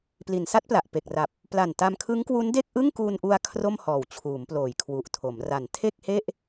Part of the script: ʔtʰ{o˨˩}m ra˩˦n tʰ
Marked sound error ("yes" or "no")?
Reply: yes